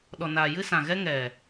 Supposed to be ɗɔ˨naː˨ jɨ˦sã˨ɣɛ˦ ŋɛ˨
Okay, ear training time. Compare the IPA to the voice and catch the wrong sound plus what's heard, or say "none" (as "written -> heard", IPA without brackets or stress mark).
none